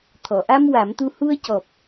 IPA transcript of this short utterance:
t̪ʰ ɔ˨˩˨ ʔ a˧ m w a˨˩˦ m t̪ u˧ h u˧ ə̯ c ɔ˨˩ p̚

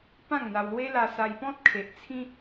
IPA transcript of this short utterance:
p ã˥˧ ŋ n̪ a˧ w l w e˦ l a˧ s a˧ j p ɔ̃˦ t̚ kʰ e˨ ʔ t͡sʰ ĩ˦

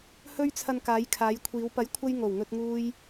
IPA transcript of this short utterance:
h ɵ˧ ɥ t͡sʰ ɐ˨ n k aː˨˧ j kʰ aː˨˧ j kʷʰ iː˨˧ w p ɐ˨˥ j kʷʰ ɐ˧ j ŋ o˨˩ w ŋ ɵ˧ t̚ ŋ uː˧ j

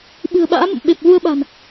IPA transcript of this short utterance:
ɓ ɨ̤˨˩ ə̯ ɓ a̰ː˧˥ m ə̰˧˨ m ɓ e˨˩ p̚ ɣ u˧ ə̯ ɓ a̤˨˩ n

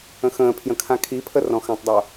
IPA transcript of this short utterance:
ə̃ x ə̃ː pʰ j ə̃ kʰ ã kʰ i pʰ ə r ɔ̃ x ã tˤ dˤ o

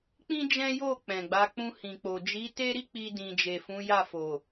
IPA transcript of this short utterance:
k͡p ĩ˦ d͡ʒ ɛ̃˦ j o˦˨ k͡p ɛ̃˨ ɡ͡b a˨˦ k͡p ũ˧ h ĩ˨ k͡p o˨ d͡ʒ i˨˦ t e˦ ɾ i˦ k͡p i˧ d ĩ˨ d͡ʒ e˨ f ũ˨˦ j a˦˨ f o˨

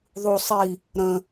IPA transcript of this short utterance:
ðˤ u sˤ i | ɾ ə̃

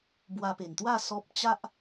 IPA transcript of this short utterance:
b w a˧ p e˨˩ n t̪ w a˥˧ s ɔ˦ p̚ t͡ɕ a˦ ʔ

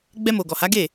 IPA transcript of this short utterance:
ɡ͡b ɛ˧ m o˨ ɡ ɔ˨ h a˨˦ ɡ e˦˨

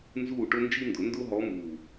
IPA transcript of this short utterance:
n z uː˥˨ ʈ ʊ˥ n d͡ʒ i˥ n d ʊ˨˩˦ n d ʊ˥ ɦ ɔ˧˥ m uː˨˩

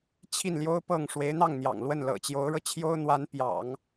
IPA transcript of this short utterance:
t͡ɕʰ i˥˩ n l j o˥ ʊ̯ p ɤ˥˩ ŋ ʂ w e˧˥ ɪ̯ n̪ ɑ˥˩ ŋ n̪ j ɑ̰˨˩ ŋ l w ə˥˩ n l ɤ̰˨˩ t͡ɕ j o˧˥ ʊ̯ ɻ ɤ˧ t͡ɕʰ j o˥ ʊ̯ n̪ w a˧˥ n p j ɑ̰˨˩˦ ŋ

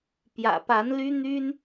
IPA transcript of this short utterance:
p j ä̰˨˩ p a˧˥ n l y˥ n̪ y˥ n

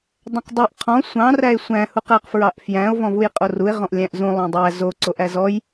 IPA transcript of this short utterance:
dˤ æ̃ q dˤ ʉ ʔ qʰ ɔ̃ sʷ ɑ̃ r æ e̯ sʷ æ̃ h u q æ q f ɹ ɑ ʔ f j æ̃ o̯ v ɔ̃ v u j qʼ o r u e̯ ʁ ɔ̃ ʔ lʲ æ̃ ʔ z ũ lˠ õ dˤ æ z o ǀ o ʔ æ z ɔ j

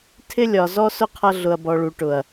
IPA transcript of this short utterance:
tʰ ɪ˦ lʲ ɒ˨ z ɔ˦ s ʊ˦ qʰ ʌ˧ ɮ ʊ˨ ɐ̯ b ɔ˨ ɭ u˨ ʈ ʊ˨ ɐ̯

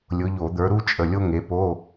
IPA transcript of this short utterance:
lʲ ʊ˨˦ ʎ o˧˩˧ d̪ ə˞˨˦ ɾ u˥ t͡ʃʼ ə˩˧˩ lʲ o˥ ŋ e˨˦ p o˧˥˧

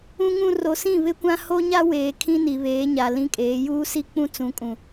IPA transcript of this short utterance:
ũ˦ ŋ ũ˦ r o˨ s ĩ˦˨ β ɪ˦ kʷ ã˦ h o˦ ɲ a˦ w eː˨ kʰ ĩ˦ n i˨ β eː˨˦ ɲ a˨ l ĩ˦ kʼ eː˨˦ j uː˦ s i˦ k͡p ũ˦ t͡s ũ˨˦ kʼ ũ˨

